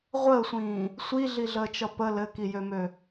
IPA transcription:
ʁʷ əː sʷ ĩː | sʷ i ɮ i ɮ əː t͡ʃ ʌ p ə l ɘ k i j ø m ø

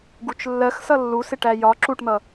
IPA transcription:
ɡ u t͡ʃ lː ɜ x s ʌ lː u s ɪ ʈ æ j ɒ ǁ u ʈ n̪ ʌ

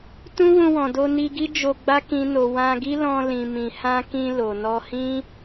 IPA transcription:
t ũ˦ w ũ˧ w ɔ̃˨ d o˧ n i˧ ɡ i˦ d͡ʒ o˧ ɡ͡b a˦ k ĩ˦ n o˧ w ã˧ ɡ i˦ l ɔ̃˧ l ĩ˨ m ĩ˨ h ã˧ k ĩ˧ l o˨ n ɔ˧ h ĩ˦

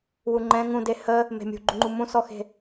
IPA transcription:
w u ŋ͡ǃ ɛ̃ ŋ ũ d e h ə | m e̤ mʲ ṳ ɡ͡ǃ u ŋ͡ǃ u m ũ s ɔ x e̤

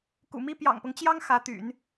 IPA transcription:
k ṵ˨˩ m i˥ p j ɑ̰˨˩ ŋ p ɤ˦ ŋ t͡ɕ j ɑ˥ ŋ x ä˧˥ t̪ y̰˨˩˦ n

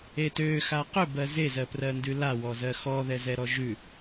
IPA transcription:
e t ø x a q ʏ b ɜ z e z ɜ p r ɜ n d ʉ l a w ɔ z ɜ x ɔ ð ɛ z ɛ ɾ ɔ ʒ ʉ

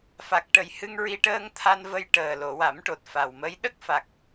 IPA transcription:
f a˨˩ k̚ ʈ ə˨˩ j h ɨ˧ ŋ ɹ i˧ ʈ əː˧ ŋ t̪ʰ a˧ n v ə˧ j ʈ əː˨˩ l o˨˩˨ w a˨˩˦ m ʈ o˨˩ t̚ f a˨˩ w m ə˧˥ j ɗ ə˦˥ k̚ f a˨˩ k̚

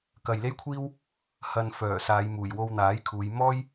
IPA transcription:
k ɐ˨ j l e˥ j kʷʰ iː˥ w | h ɐ˨ n f œː˨˩ s aː˨˧ j m uː˨˩ j w o˧ w n̪ aː˨˥ j kʰ uː˨˧ j m ɔː˥ j

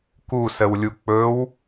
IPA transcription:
k u s ə w lʲ u k͡p ɵ w

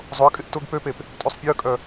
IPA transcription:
zˤ ʊ ə̯ kʼ ɪ ʔ t ʊ ɡ p ø p e p | tʼ ø sˤ pʲ ø ə̯ kʼ œ

